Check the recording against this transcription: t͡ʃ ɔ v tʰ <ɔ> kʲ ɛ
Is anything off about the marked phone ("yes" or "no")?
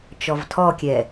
no